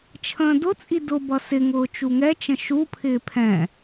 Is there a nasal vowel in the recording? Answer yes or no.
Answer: yes